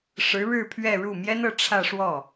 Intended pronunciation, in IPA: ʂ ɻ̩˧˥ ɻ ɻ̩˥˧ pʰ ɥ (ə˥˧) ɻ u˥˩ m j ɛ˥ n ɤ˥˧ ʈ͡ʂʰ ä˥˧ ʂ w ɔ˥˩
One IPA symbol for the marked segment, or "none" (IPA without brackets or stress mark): ɛ˥˧